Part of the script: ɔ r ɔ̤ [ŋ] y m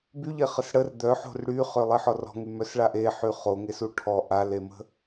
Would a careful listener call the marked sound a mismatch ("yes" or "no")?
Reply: no